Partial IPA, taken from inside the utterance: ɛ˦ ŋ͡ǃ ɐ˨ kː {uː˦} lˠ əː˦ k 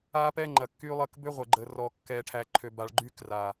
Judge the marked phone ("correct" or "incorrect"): incorrect